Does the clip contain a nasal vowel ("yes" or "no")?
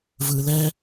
no